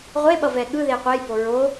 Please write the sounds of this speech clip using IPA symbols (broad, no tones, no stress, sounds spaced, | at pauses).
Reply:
ʁʷ e ɓ ʌ v ɛ ɠ ɯ ð e qʷ ɛ j b o ɹ o